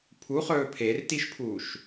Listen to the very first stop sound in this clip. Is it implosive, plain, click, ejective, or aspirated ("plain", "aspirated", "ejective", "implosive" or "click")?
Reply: aspirated